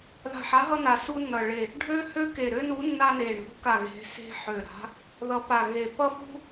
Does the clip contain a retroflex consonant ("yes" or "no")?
yes